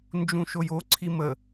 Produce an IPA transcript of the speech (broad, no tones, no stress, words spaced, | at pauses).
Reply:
nd͡ʒũʃojo ǀʰimə